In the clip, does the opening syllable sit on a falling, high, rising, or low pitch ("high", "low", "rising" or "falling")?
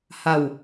falling